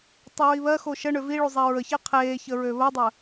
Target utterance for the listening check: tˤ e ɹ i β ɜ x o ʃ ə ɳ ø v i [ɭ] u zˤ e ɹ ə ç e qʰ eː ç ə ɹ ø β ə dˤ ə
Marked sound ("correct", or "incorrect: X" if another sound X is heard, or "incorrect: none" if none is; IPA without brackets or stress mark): correct